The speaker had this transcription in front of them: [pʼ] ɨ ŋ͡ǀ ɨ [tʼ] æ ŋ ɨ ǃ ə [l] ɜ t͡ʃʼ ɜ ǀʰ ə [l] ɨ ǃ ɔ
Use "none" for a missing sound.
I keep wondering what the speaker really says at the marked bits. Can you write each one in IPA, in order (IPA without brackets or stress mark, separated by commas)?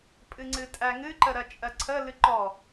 pʼ, tʼ, ɾ, l